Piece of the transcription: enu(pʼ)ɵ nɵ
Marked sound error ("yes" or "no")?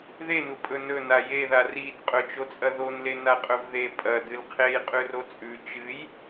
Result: no